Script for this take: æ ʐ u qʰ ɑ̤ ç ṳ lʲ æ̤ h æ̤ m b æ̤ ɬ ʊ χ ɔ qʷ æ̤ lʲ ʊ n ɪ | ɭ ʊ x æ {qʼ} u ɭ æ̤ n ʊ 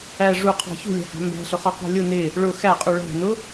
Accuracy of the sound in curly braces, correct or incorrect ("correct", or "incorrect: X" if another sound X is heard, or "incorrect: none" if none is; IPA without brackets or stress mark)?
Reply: correct